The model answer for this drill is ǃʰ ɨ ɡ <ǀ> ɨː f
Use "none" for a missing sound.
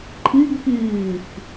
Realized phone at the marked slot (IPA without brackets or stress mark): k